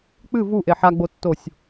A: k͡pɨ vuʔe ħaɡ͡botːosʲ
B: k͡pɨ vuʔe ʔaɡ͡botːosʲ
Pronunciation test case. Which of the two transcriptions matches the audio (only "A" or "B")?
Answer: A